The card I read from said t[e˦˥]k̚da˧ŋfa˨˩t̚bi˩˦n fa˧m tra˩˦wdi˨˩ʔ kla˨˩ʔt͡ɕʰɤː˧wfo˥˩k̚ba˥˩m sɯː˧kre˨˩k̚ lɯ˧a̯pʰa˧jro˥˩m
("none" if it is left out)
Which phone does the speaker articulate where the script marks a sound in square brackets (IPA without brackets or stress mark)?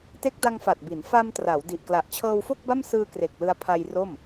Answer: e˦˥